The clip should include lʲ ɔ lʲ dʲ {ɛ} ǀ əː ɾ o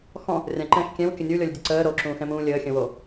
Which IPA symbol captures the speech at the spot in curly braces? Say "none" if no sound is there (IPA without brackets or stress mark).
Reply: ə